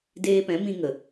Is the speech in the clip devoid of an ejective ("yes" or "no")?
yes